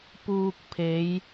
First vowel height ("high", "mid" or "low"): high